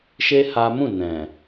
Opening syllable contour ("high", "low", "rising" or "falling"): high